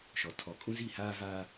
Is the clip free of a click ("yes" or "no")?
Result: yes